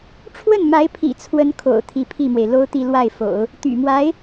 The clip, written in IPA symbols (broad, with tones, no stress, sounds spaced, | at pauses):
ʈ͡ʂʰ w ə˥˩ n m a˧˥ ɪ̯ pʰ ḭ˨˩ t͡sʰ w ə˥ n kʰ o̰˨˩ ʊ̯ t̪ʰ i˧˥ pʰ i˥˩ m w e˩ ɪ̯ l o˥ ʊ̯ t̪ i˥˧ l w a˥˩ ɪ̯ f o̰˨˩˦ ʊ̯ | t̪ y̰˨˩ m w a˧˥ ɪ̯